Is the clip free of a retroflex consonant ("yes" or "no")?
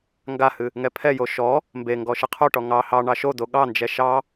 no